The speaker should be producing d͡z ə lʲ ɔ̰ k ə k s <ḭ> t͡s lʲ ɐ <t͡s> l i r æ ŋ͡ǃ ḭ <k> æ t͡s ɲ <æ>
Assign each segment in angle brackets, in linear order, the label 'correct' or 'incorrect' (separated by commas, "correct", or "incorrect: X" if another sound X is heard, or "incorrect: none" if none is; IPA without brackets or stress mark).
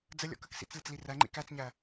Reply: correct, correct, correct, correct